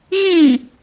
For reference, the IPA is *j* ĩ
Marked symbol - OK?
no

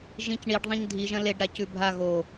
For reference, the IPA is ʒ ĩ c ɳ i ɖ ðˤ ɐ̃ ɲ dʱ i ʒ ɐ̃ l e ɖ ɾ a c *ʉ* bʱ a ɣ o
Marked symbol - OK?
yes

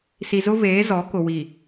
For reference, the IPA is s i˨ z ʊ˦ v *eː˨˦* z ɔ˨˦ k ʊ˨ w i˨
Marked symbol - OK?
yes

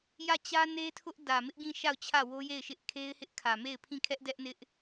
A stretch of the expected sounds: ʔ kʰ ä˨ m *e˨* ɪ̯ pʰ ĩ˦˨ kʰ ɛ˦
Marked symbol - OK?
no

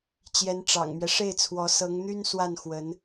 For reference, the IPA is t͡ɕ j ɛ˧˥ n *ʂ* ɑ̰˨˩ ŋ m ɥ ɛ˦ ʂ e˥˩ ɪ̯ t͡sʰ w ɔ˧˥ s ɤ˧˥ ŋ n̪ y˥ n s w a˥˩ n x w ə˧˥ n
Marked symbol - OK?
no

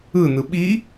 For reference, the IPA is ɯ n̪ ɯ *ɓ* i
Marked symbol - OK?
yes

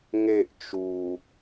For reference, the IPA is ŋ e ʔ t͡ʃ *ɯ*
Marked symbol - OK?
no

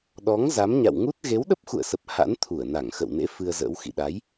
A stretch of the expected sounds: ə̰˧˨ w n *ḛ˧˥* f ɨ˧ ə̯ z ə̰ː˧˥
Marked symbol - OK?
yes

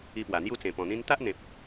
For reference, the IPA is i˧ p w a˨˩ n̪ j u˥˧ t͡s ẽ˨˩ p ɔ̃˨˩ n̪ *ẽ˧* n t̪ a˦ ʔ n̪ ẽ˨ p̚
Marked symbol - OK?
no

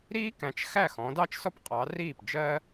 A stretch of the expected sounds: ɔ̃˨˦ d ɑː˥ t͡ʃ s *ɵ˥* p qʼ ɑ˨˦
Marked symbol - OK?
no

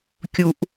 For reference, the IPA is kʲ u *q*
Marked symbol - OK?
no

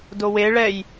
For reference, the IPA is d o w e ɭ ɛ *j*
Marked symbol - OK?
yes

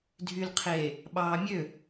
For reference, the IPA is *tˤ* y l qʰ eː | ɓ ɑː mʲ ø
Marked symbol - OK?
no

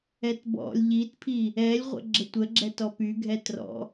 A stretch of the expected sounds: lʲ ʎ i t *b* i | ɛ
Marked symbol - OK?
no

